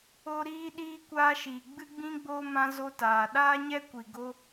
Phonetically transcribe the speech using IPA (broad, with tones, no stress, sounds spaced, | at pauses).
o˧ ɾ iː˦ ɗ iː˦ kʷ aː˧ ʃ i˨ ɡ͡b ɨ˦ ɡ͡b ĩ˦ ɡ͡b oː˧ m ã˧ z o˧ t aː˨ ɗ aː˦ ɲ ɛ˦ kʷ i˨ ɡ o˧